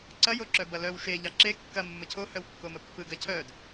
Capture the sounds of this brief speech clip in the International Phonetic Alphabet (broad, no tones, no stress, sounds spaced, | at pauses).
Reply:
ǀ ɐ j o ǁ œ b ɐ l œ w ʃ e ʎ ɑ ǁ e kː ɐ mː ə cʰ o h œ w kː o m ə pː ɯ ɡ ɐ cʰ œ d